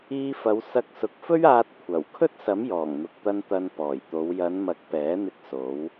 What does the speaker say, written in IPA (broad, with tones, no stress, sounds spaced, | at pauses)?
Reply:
iː˧ f ɐ˨˧ w s ɐ˧ k̚ s ʊ˨ k̚ f ɵ˥ ɥ aː˧ t̚ kʷʰ ɐ˨˩ w kʰ ɵ˥ t̚ s ɐ˨˥ m j ɔː˨˩ ŋ n̪ ʊ˨ k̚ t̪ ɐ˧ n t̪ ɐ˧ n p ɔː˨˩ j t̪ o˨˧ w j ɐ˨˧ n m ɐ˨˥ k̚ p ɛː˨˥ n̪ ɪ˧ k̚ s o˨˧ w